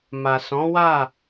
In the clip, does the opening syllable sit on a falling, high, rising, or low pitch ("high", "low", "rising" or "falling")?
low